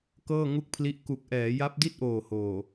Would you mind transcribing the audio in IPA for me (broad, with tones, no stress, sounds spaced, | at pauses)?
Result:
k ɤː˥˩ ŋ u˥˩ k̚ pʰ l i˦˥ ʔ k u˨˩ k̚ ʔ ɛː˩˦ j a˦˥ p̚ d i˥˩ t̚ ʔ oː˨˩ h oː˨˩